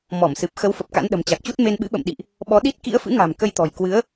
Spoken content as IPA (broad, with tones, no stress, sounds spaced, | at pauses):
m ɔ˧˩ m s ɨ˨˩ p̚ x ə˨˦ w f ə˨˩ p̚ k a̰˧˥ n ɗ ə̤˨˩ m t͡ɕ a˨˩ k̚ t͡ɕ u˦˥ t̚ m e˧ n ɓ ɨ̰˧˥ ɓ ə̰˧˨ m ɗ ḭ˧˨ ʔ | ɓ ɔ˨˦ ɗ i˦˥ t̚ k ḭ˧˥ ə̯ f ɨ̰˧˥ ŋ a̤˨˩ m k ə˧ j t̪ ɔ̤˨˩ j k w ɨ˨˦ ə̯